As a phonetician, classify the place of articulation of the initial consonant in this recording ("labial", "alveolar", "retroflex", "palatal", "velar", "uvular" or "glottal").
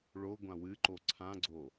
retroflex